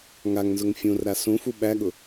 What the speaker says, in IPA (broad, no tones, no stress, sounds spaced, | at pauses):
ŋ a ŋ n z ʊ ŋ fʲ ũ r ɾ a s ũ f u ɓ æ ɠ ʊ